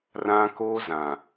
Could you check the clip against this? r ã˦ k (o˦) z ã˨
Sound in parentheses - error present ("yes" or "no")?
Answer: no